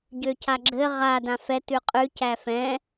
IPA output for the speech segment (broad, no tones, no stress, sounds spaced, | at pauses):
ɟ ø c a ɡ͡ǁ ɘ ʁ a d ã f ɛ t ʉ qʼ ʉ c æ f ɛ̃